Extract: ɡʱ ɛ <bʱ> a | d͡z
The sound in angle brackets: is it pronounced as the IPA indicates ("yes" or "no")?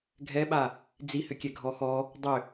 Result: no